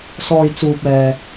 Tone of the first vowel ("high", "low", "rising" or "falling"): low